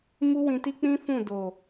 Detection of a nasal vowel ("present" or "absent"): present